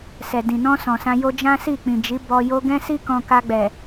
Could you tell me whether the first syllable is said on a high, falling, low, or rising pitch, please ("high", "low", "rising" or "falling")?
low